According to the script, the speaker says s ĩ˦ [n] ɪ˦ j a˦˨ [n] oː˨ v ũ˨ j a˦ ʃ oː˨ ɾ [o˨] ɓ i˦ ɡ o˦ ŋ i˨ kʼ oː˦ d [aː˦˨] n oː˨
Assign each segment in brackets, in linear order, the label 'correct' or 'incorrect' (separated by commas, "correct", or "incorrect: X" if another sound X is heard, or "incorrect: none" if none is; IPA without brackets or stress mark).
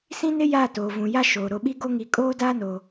correct, incorrect: t, correct, incorrect: aː˦